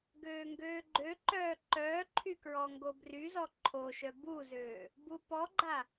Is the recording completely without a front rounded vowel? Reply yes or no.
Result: no